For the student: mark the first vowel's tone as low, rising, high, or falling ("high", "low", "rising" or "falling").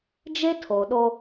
high